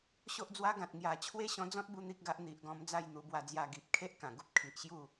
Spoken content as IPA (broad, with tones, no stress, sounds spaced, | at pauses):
ɕ o˦ ʔ d͡z w a˦ ɡ ã˨ t̚ ŋ j a˨˩ t͡ɕʰ w e˦ ɕ ɔ̃˧ d͡z ɔ̃˦ t̚ b u˦ n̪ i˦ k̚ ɡ a˦ ʔ n̪ i˨ ʔ ɡ ɔ̃˧ m d͡z a˥˧ j n̪ u˧ b w a˧ d͡z j a˧ ɡ i˨ p̚ kʰ e˦ ʔ k ã˨˩ ɡ u˦ p̚ kʰ i˨ ʔ ɕ j u˥˧